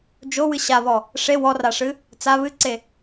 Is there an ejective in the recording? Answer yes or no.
no